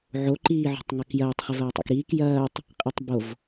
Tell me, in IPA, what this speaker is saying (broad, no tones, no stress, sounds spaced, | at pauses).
ʕ o ǃ iː ʕ o̤ tˤ ŋ a k j ɐː tˤ χ ɪ v ɐː tˤ a̰ k ɾ iː k j ɐː tˤ | qʼ i tˤ b o v